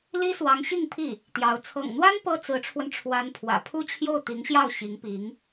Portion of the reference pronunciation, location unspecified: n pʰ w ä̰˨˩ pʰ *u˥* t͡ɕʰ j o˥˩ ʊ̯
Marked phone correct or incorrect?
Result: correct